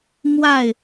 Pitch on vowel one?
falling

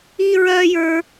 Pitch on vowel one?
high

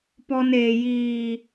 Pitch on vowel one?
high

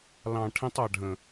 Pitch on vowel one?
low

